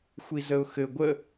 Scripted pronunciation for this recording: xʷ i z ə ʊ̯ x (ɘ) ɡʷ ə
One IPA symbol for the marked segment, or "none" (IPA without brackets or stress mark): ɘ